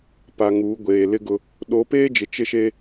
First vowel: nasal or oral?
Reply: oral